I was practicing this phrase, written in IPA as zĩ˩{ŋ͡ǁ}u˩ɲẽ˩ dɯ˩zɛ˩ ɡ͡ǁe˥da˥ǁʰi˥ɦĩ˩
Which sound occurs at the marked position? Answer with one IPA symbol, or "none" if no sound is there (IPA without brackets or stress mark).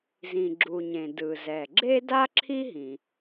ɡ͡ǁ